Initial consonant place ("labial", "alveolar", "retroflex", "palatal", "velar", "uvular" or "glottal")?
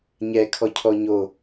palatal